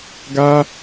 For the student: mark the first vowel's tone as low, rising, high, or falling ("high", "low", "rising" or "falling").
high